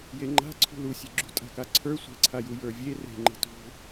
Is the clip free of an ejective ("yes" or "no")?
no